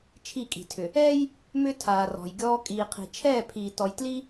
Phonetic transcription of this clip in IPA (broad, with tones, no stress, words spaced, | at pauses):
t͡ʃʰi˦˨kʼi̤˨tʰʏ˨ | ɛː˦j | mʏ˦ tʰaː˨rɔ̤˨jɡʲɔː˦ kʼiː˨qʰi̤˨ t͡ʃʰɛː˦˨pʰiː˨ tɔ˨jtli˦